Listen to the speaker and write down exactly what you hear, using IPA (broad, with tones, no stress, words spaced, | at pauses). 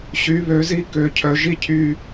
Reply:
ɕy˩˧βø˩˧zi˧ kø˩˧cʰœ˩˧ʒi˥˧cʰy˧